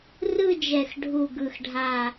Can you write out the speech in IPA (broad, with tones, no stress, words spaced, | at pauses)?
rɯ˥˧d͡ʒɛ˧˩xɖʱu˧˩ ɡɯ˧˩xɖʱa˧˩